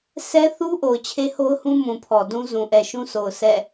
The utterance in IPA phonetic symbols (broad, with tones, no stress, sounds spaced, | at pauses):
sʰ ɛ˦ θ u˦ ʔ o˨ ʊ̯ t͡ɕʰ e˦ h o˦ ʊ̯ h ũ˦ m ũ˨ pʰ ɔ˨ d ũ˦ z ũ˨ ʔ ɛ˨ ʃ ũ˦ s o˨ ʊ̯ s ɛ̰˦˨